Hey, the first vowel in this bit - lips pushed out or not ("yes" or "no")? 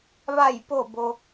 no